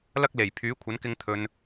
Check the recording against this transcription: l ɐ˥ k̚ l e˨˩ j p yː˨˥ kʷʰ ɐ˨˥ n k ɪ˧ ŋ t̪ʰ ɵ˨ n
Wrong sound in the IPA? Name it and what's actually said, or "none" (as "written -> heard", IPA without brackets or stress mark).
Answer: p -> pʰ